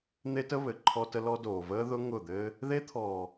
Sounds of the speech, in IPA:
n̪ e˦ t ə˦ β ɘ˨ ǃʰ ɔ˦ t ə˦ l ɔ˦ d oː˨ v əː˦ ð ʊ˦ ŋ ʊ˦˨ d̪ ɘː˦ | ð e˦ t̪ʰ ɔː˨

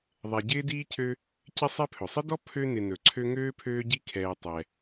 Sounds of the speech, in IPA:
ðˤ ɛ˨ ɟ ɪː˥ d iː˥ cʰ ø˦ | c ɪ˥ sˤ ɛ˦ pʰ ɵ˩ sˤ ɪ˥ d ɔ˥ pʰ ø˦ n ɪ˨ n ɵ˩ ǀʰ ø˦ ŋ øː˥ pʰ øː˦ ɟ i˦ kʰ ɛː˨ tˤ ɛ˩

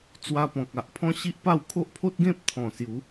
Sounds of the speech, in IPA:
t͡s w a˧ p ɔ̃˨ k̚ a˨ ʔ pʰ ɔ̃˦ ɕ i˦ ʔ p a˥˧ w kʰ o˦ ʔ pʰ o˦ t̚ ɡ ẽ˦ p̚ t̪ʰ ɔ̃˨˩ s j u˨˦

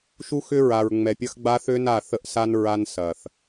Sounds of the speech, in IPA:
ʃ u˦ x ʏ˦ ɹ a˨ ɹ ŋ͡m ɛ˨ pʲ ɐ˦ x ɡ͡b a˦ θ ø˦ n a˦˨ θ ə˦ ʔ s a˦ n ɹ a˦ n s ɐ˨ θ

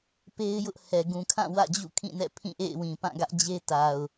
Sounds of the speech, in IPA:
p e˦ ɪ̯ j ʊ˦ ʔ h ɛ˨ ɡ ũ˨ kʰ ã˦˨ w ä̰˦˨ d͡ʑ ṵ˦˨ kʰ ĩ˦˨ n ɛ̰˦˨ pʰ ĩ˦˨ ʔ ḛ˦˨ ɪ̯ w ĩ˨ p ã˦˨ ɡ ä˦ ʔ d͡ʑ e˦ t a˨ ʊ̯

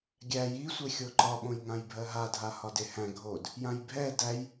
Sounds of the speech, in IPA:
ɡʲ æ j i sʷ e xʲ o ǃ ɒ ɓ õ j ŋ ã j bʱ ɜ ɦ a dʱ a h ɒ d e h æ̃ ɡʱ o d | j ã j bʱ ɛ d æ j

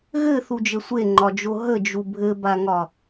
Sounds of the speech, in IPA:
ɣ ɘ θ u d͡ʒ ɘ sʷ e ŋ͡ǃ ɒ d͡ʒ o ɦ ə d͡ʒ u bʱ ɘ b a ŋ ɒ

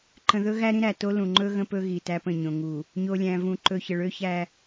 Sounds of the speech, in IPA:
ǃ ə̃˨ ð ɵ˦ ɣ æ˦ ɾ ĩ˦ ɾ æ˨ t o˦ l ũ˨ ŋ͡ǃ ɵ˦ ɣ ə̃˦ p ɵ˦ ɣ i˨ t æ˦ p ə̃˦˨ ɲ õ˨ ŋ u˨ | ɲ o˨ lʲ æ̃˨ v ũ˨ ǃ ɵ˨ ç ə˨ ɭ ø˦ ç æ˦

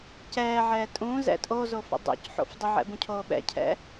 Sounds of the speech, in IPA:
c ɛː ʕ ɛː tʼ ũː z ɛ̰ tʼ o z o f ə̰ dˤ ṵ c ħ o̰ f dˤ ə ʕ ɛ̰ b ũ cʰ oː ɓ ɛ̰ cʰ ɛ̰

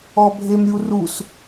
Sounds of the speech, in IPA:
ɔ bʱ e m ɾʲ u r u s

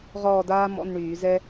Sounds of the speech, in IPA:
ʁ ɔː˥˧ d aː˥ m ɔ̰˧˥˧ n ɳ yː˧˩˧ z ɛ˥

